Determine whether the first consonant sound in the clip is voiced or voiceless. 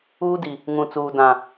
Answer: voiced